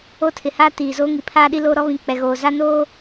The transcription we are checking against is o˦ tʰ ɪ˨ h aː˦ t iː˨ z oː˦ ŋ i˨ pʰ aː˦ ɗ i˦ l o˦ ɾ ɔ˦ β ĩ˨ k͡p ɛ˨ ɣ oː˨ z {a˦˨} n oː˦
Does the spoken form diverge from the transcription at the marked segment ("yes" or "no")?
yes